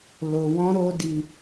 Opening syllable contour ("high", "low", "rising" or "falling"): low